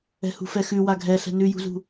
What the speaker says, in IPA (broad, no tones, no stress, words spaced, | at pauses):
ɛ̤hṳfɛxʉ waɡʱɛɬɛ̤ nʉjṳzṳ